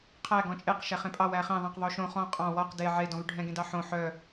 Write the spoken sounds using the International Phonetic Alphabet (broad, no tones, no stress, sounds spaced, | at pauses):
qʰ æ ɡ ɔ̃ t͡ʃʼ e q ʃ æ χ ẽ pʼ ɑ w æ χ ẽ ðˤ ɛ̃ q ðˤ o ʃ õ χ ɔ̃ qʼ ɑ̃ w ɔ q d e ʕ e d ɔ̃ β y ɖʱ ɛ̃ ɡ ẽ d ɑ ħ õ ħ œ